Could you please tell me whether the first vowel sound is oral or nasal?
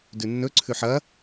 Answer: oral